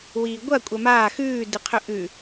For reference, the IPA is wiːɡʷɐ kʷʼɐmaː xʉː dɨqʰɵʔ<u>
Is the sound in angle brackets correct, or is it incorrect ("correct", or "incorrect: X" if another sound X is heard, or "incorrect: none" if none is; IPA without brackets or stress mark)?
incorrect: ʉ